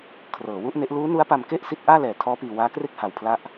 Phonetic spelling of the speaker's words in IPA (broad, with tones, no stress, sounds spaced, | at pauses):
kʰ r ɤː˩˦ w u˥˩ ʔ n e˦˥ ʔ l uː˦˥ n u˦˥ a̯ p a˧ m k e˥˩ ʔ s i˦˥ t̚ ʔ aː˥˩ l ɛː˨˩ tʰ ɔː˦˥ p iː˧ w aː˦˥ k r e˥˩ k̚ h a˧ w pʰ l a˥˩ ʔ